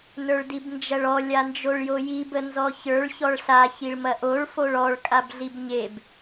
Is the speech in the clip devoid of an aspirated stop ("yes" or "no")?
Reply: yes